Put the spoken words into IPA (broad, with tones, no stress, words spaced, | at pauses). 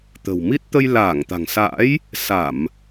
t̪ə̤˨˩wmi˦˥t̚ t̪ə˧j laː˧˩ŋt̪a̤˨˩ŋsa̰ː˧˥j | sa˧˩˨m